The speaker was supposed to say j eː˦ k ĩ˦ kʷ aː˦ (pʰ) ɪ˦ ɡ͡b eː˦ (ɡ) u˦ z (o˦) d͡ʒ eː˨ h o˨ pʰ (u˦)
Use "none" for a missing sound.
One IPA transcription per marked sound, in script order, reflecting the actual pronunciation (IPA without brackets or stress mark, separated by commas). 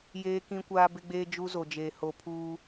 b, d͡ʒ, o˨, uː˦